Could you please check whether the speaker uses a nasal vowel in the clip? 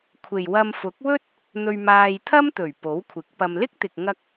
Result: no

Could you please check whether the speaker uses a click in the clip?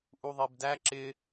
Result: yes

